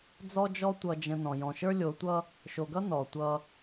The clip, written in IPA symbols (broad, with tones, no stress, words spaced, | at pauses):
d͡zɔ˦d͡ʒɔ˦ tʷʌ˨d͡ʒə̃˨ nɔ̃˨ jɔ̃˨ʃə˞˦lʲo˨˦tʷʌ˦ | ʃo˨ɡʌ˦ nɔ˨tʷʌ˦